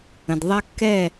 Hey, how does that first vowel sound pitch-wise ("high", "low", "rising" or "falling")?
low